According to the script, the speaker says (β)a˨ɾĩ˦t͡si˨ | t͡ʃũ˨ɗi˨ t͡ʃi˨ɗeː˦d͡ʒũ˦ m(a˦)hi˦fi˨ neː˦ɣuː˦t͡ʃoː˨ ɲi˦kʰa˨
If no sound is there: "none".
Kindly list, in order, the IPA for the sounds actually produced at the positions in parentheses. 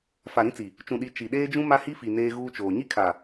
f, a˦

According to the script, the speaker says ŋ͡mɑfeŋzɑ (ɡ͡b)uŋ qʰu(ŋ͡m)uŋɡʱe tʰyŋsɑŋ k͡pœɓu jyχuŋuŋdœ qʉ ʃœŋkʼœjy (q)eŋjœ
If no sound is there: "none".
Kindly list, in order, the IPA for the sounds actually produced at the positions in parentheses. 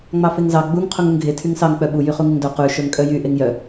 ɡ͡b, ŋ, ʔ

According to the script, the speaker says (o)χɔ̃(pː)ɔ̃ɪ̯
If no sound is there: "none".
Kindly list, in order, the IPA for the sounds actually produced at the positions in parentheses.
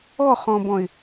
ɔ, b

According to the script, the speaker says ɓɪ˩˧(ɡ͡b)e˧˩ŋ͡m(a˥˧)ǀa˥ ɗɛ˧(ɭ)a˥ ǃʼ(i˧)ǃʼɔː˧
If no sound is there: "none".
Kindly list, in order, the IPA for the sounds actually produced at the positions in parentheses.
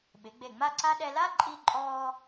ɡ͡b, a˥˧, l, i˧

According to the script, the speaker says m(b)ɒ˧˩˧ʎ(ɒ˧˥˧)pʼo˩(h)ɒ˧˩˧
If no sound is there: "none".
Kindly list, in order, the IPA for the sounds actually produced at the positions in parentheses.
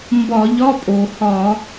b, ɒ˧˥˧, h

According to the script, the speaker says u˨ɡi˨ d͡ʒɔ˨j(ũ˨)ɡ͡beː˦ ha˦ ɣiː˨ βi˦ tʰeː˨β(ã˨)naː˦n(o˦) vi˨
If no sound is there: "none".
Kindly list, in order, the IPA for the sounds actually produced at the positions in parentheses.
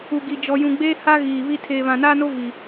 ũ˨, ã˨, o˦

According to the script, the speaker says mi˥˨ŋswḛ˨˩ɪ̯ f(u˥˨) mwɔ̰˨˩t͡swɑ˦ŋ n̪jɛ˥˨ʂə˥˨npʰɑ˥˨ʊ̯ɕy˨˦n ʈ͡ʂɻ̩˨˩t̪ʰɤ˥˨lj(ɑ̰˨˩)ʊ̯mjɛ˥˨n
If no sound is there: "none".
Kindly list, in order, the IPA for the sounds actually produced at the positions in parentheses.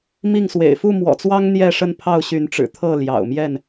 u˥˨, ɑ̰˨˩

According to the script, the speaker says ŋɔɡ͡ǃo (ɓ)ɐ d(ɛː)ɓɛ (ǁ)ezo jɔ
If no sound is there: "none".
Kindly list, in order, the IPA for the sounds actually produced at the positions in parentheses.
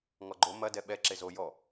m, ɛ, ǁ

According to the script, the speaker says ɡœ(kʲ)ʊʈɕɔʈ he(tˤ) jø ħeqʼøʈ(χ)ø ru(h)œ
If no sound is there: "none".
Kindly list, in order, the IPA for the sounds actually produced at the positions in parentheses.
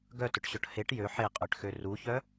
t, ʈ, x, ç

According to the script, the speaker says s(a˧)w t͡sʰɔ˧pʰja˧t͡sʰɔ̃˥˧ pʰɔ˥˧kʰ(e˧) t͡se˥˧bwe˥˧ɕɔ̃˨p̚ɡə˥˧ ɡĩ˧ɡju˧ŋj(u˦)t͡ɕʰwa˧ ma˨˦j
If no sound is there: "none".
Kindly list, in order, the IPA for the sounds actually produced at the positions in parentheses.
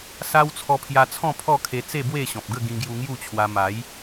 a˦, e˧, u˥˧

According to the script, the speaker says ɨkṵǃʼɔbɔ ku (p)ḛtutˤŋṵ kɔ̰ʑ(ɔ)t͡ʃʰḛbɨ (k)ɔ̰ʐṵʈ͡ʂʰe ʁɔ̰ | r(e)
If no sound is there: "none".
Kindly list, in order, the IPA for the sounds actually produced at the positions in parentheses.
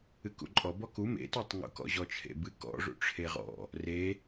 m, ɔ, k, e

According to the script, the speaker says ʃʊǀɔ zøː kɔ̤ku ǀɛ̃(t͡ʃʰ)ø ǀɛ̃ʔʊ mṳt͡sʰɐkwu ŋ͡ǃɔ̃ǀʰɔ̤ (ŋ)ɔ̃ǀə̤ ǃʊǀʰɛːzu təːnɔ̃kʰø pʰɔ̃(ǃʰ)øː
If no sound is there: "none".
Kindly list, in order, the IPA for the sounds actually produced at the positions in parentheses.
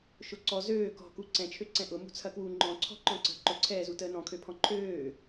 t͡ʃʰ, ǃ, ǃʰ

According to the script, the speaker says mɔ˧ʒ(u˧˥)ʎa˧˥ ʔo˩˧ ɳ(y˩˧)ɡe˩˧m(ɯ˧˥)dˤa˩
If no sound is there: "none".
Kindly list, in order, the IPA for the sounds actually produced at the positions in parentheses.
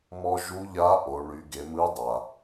u˧˥, y˩˧, ɯ˧˥

